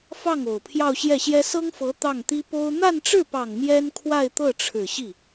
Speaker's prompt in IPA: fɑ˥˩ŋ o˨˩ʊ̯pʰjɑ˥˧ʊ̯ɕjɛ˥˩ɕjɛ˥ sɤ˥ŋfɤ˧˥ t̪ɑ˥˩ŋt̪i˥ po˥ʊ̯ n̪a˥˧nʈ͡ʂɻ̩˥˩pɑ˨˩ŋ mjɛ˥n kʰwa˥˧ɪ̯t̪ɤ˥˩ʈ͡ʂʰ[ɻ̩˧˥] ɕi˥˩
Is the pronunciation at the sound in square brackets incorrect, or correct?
incorrect